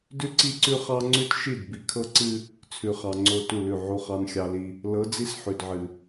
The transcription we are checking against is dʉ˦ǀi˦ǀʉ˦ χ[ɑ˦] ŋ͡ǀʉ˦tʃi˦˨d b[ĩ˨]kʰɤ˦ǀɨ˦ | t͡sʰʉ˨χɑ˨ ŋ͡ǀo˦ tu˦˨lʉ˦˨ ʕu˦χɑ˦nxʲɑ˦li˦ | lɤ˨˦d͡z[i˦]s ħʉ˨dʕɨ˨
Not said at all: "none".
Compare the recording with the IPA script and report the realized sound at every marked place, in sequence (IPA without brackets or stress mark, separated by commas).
ɑ˦, i˨, i˦